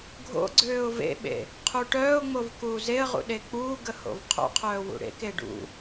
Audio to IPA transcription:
ɡʱo̰ɡ͡ǀøːʊ̯ vḛɓḛ | qʰuʈœːʊ̯ŋ͡mov kuːzeə̯ʁṵ ɗek͡puːɡə ho̰vqʰo̰qʰœː wṵɽḛke ɖṵ

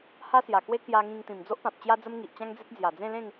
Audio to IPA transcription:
ha˦sja˨˩kwe˦ kja˧ŋĩ˧ŋ t̪ĩ˨˩md͡zo˦ʔpã˨p̚ t͡ɕja˦d͡zə˦m ŋi˨ʔt͡ɕã˦ŋd͡ze˦t̚ d͡zja˨˩ d͡zẽ˥˧ lẽ˥˧ŋ

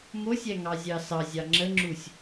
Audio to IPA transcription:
mosʲæŋɑzʲɑ sɑzʲɑ ŋ͡ǁəŋ͡ǁusʲ

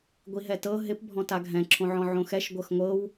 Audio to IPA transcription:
ɡʷiɦɛtɤ ɦɪp bʱɔ̃taɡʱɛ̃ ǁʰõʕɔ̃ʕõxɛʃ ɡʷɤxŋʷɤw

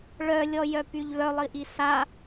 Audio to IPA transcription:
ɭœ lʲɔjœpyʎβœ lˠiʔisa

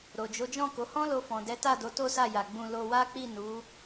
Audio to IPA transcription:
ɾo˨d͡ʒo˨˦d͡ʒɔ̃˦˨ko˨˦ hɔ̃˦lo˧fɔ̃˨ dɛ˨˦ta˦˨ do˨˦to˦sa˦˨ja˨ ɡ͡bũ˧ lo˧wa˦k͡pi˦˨ nu˨˦

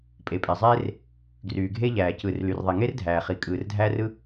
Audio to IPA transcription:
pʼe˩pʼe˩zˤeː˥r | ɡryː˩ɡʱe˥ʎæː˩ cɯː˩rly˩rðˤi˩ ŋe˥rdʱæː˩χi˩ kʼɯː˩rdʱæː˥rɯ˥

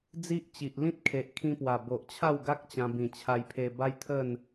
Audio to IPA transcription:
d͡zi˦ʔt͡ɕi˨ʔ lĩ˦t̚kʰe˨ʔkʰĩ˧pwa˨˩ bo˨ʔt͡ɕʰa˥˧wɡa˦k̚ t͡ɕã˧ bĩ˨˩t͡ɕʰa˧jpʰe˧ba˦j t̪ʰə˥˧n

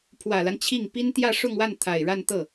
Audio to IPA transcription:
pʰwä˨˩la˦n t͡ɕʰi˥˩ŋ pi˥nt̪jä˥˧ʂʊ˥˧ŋwa˥˩n t̪ʰa˨˩ɪ̯ɻa˥˧nt̪ɤ˥˩

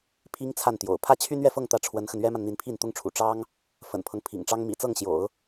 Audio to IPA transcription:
pʰi˧˥ŋ t͡sʰa˥˩nt̪jo̰˨˩ʊ̯ pʰä˥˩t͡ɕʰy˥nɥɛ˥˧fɤ˥˧ŋ t̪ä˥˩ʈ͡ʂʰwə˧˥nxə˧n ɥɛ˥ma˨n n̪i˧˥npʰi˥˩nt̪ʊ˥ŋʈ͡ʂʰṵ˨˩ ʈ͡ʂɑ˥ŋ | fə̰˨˩npʰɤ˦ŋ pʰḭ˨˩ŋʈ͡ʂɑ˥ŋ mḭ˨˩t͡sɤ˥˩ŋɕjo̰˨˩˦ʊ̯

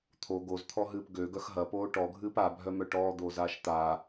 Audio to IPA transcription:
t̪ʰo ɡozt̪ʰɔɦɨːp ɡøɡœx ɦɐpoː ʈɔɡʱɨːp abʱœmœ ʈɔːd̪oːzaːʃ t̪a

